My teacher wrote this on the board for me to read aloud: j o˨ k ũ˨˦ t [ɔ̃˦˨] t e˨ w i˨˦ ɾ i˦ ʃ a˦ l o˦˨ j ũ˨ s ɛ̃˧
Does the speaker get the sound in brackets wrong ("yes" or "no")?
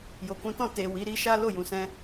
no